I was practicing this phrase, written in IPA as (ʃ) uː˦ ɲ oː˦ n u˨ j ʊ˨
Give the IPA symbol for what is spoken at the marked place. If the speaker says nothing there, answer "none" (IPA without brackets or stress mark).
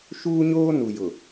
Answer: ʃ